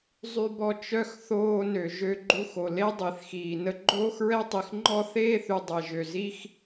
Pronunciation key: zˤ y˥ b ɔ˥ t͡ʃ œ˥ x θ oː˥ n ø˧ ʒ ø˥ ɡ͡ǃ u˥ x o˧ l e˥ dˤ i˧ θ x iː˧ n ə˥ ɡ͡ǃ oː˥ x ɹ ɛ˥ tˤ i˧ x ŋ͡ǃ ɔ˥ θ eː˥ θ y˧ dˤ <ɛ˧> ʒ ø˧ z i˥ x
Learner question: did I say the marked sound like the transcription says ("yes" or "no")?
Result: yes